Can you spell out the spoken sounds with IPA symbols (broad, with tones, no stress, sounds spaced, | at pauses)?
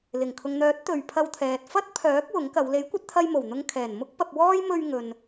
l ɪ˨˩ ŋ kʰ ʊ˨ ŋ n̪ œː˨˥ t̚ t̪ ɵ˨ ɥ pʰ ɐ˧ w t̪ʰ ɛː˨ t̚ f ɐ˥ t̚ pʰ œː˨˥ k̚ w ʊ˨˥ ŋ k ɐ˨˧ w l e˨˥ j kʷ ɐ˧ t̚ t̪ʰ ɐ˧ j m o˨˩ w n̪ ʊ˧ ŋ kʰ ɛː˨˩ n m ʊ˥ k̚ p ɐ˧ p̚ w ɔː˥ j m ɵ˧ ɥ ŋ ɵ˨ n